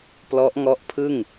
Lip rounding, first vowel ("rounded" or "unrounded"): rounded